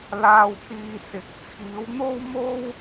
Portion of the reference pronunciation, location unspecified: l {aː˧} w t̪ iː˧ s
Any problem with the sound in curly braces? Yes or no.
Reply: no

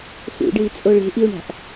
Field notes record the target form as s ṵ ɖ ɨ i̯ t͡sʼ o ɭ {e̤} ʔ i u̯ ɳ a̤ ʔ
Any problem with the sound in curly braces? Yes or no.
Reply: no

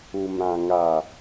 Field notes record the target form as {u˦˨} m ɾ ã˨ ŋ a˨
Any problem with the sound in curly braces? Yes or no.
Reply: yes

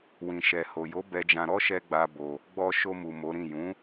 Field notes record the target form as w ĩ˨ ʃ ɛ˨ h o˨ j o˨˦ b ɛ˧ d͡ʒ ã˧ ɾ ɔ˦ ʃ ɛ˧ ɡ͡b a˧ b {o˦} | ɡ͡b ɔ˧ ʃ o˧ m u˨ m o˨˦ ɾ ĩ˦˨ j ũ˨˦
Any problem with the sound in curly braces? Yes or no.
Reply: yes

